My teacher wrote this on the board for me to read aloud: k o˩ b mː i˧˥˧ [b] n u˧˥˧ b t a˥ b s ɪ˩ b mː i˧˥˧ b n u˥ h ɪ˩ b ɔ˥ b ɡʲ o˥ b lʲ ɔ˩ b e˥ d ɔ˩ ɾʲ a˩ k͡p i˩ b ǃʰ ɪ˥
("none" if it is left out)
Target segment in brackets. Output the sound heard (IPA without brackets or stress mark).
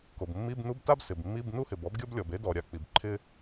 b